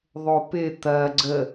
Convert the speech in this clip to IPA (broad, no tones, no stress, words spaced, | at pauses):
ðˤopɪ t̪ɐ ɡ͡ǀə